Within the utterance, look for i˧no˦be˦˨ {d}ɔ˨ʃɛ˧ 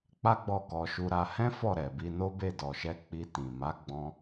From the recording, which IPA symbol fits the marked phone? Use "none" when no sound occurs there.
d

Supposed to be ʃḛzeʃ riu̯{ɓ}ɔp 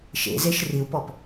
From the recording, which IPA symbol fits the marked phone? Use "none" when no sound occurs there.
p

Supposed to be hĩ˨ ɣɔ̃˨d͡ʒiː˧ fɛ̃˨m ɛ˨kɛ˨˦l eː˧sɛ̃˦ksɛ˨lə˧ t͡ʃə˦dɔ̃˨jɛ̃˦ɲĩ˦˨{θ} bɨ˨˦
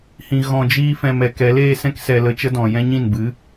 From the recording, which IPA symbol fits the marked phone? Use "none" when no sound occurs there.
n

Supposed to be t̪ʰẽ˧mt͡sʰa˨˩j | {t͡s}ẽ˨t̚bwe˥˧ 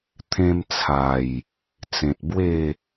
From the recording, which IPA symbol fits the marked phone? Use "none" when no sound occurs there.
t͡s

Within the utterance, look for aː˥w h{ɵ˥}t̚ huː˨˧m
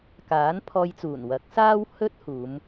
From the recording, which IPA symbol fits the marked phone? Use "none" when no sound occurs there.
ɵ˥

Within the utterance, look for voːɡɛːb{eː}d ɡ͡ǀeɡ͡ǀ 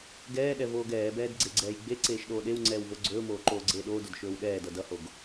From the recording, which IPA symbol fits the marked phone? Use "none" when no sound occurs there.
ɛː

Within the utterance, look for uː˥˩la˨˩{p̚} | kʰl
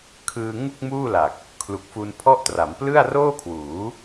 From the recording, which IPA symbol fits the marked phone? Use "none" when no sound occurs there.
k̚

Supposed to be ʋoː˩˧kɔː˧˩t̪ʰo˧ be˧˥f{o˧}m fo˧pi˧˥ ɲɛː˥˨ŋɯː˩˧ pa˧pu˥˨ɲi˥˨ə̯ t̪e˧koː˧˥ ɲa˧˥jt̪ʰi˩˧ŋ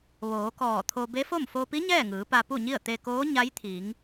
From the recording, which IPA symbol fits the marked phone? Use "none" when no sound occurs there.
o˥˨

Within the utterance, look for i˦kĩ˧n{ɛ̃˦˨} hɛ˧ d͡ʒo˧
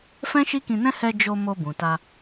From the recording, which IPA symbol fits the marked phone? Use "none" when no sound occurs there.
ɛ̃˦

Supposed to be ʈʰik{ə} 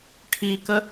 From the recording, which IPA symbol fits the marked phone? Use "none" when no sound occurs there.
ə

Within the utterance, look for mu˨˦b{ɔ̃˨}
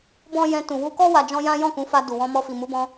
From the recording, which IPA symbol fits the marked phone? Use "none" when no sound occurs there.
ɔ̃˧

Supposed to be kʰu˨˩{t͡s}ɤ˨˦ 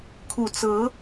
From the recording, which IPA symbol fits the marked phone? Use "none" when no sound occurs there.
t͡s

